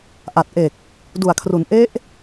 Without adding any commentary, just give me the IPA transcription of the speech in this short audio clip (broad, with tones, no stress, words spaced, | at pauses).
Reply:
ʔa˨˩t̚ʔe˨˩k̚ | du˨˩a̯kʰru˩˦n ʔe˦˥ʔ